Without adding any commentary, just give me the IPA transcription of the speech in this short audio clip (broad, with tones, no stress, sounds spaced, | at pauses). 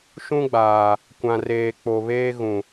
ʃ ũ˦ ɡ͡b aː˨ | kʷ ã˨ r eː˨ k͡p o˨ β eː˦ ɣ ũ˨